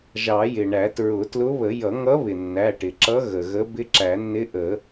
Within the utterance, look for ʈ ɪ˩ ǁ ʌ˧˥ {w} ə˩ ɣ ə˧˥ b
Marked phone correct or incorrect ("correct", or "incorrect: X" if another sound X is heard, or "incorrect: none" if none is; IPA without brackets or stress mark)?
incorrect: ɣ